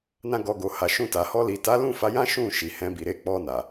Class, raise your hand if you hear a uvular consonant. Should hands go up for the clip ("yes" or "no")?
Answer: no